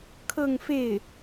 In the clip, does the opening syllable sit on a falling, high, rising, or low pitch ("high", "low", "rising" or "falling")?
falling